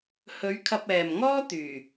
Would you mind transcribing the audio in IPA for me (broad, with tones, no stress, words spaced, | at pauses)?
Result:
hɵ˨˧ɥ kʰɐ˧p̚ɛː˨mŋɔː˥ t̪yː˨˩